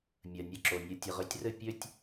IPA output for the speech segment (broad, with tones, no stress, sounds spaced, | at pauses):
mʲ ɜ˩ nʲ ɘ˩˥ ǁ o˩ nʲ ɘ˩˥ tʲ ɘ˩ ʁ ø˩˥ tʲ r ɘ˥˩ pʲ ø˥ tʲ